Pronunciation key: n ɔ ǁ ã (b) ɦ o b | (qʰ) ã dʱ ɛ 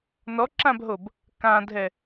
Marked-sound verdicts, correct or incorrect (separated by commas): correct, incorrect